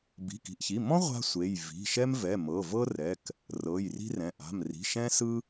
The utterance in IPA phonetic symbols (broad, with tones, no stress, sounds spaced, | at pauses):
b i̤˩˧˩ k i̤˩˧˩ ʔ ç i˩˧˩ m ɔ̃˥ ʁʷ a̤˥ sʷ e˩˧˩ j v i̤˩˧˩ ʃ ɛ˥ m v ɛ˩˧˩ m ɤ˩˧˩ v ɤ˥ r ɛ˩˧˩ k | r ɤ˩˧˩ j r i̤˥ r ɛ̃˩˧˩ ʔ a̤˩˧˩ m r i̤˩˧˩ ʃ ɛ̃˥ s ɯ˥